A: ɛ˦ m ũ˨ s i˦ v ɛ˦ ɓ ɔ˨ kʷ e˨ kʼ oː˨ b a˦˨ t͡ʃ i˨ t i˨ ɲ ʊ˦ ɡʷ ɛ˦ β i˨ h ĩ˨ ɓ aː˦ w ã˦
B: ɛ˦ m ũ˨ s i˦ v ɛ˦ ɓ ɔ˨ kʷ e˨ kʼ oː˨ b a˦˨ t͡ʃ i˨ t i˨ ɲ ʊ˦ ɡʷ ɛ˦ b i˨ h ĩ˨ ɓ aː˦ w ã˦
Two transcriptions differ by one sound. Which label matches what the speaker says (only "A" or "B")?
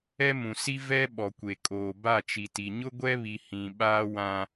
A